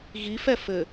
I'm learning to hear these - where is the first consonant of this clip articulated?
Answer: velum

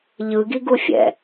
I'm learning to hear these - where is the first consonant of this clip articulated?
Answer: palate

